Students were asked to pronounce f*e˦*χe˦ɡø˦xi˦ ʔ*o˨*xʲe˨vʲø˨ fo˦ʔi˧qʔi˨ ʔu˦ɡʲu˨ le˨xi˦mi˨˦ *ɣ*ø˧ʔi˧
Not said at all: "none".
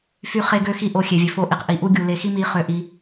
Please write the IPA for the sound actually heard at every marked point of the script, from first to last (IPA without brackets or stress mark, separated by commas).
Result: y˦, o˧, χ